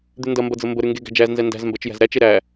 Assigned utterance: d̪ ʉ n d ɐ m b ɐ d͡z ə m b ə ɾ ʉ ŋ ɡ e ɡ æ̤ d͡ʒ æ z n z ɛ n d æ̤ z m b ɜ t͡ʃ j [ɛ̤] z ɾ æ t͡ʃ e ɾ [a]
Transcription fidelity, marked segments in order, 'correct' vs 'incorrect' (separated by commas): incorrect, incorrect